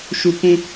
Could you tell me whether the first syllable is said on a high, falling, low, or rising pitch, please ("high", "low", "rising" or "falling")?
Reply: high